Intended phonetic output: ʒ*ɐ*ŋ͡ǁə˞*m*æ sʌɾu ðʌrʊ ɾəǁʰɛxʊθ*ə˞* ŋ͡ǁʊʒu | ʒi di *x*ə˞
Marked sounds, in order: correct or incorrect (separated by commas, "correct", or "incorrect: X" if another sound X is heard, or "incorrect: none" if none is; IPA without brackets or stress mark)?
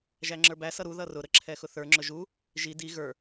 incorrect: æ, incorrect: b, correct, incorrect: ɣ